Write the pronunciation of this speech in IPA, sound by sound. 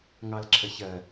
ŋ ɑ l ǁʰ ə ç ɜ

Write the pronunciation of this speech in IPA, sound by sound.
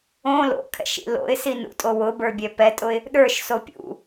õ l o̰ kʰ ɛ̰ ʃ ḭ l o̰ ɪ̯ s i n ṵ tʼ o w ʊ b ə˞ bʲ ɛ p ɛ tʼ ʊ ɪ̯ | ɗ ə˞ ʃ s o pʲ ṵ

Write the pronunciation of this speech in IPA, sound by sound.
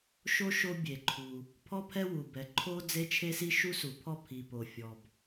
ʃ o˥ ʃ o˥ bʲ e˩ ǃʰ u˩ | pʰ ɔ˥ pʰ ɛ˥ w u˩ b ɛ˩ ǃʰ o˥ d͡z e˥ t͡ʃʰ e˥ s i˥ ʃ u˥ s u˩ pʰ ɔ˥ pʰ i˩ p o˩ fʲ ɔ˩ b

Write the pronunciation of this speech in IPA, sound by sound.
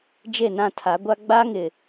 d͡ʒ e˦˨ n ã˦˨ tʰ a˨˦ ɡʷ a˦ ɡ͡b a˦ ŋ ɪ˨

